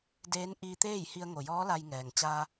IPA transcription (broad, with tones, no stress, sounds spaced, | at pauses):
d eː˧˥ n ʔ iː˧ t̪ eː˥˨ j h i˧ ə̯ ŋ o˩ j ɔː˧˥ l a˧ j ŋ ɛː˩ ŋ t͡ɕ aː˧